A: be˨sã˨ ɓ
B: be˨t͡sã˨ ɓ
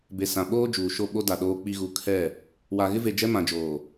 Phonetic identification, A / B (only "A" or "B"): A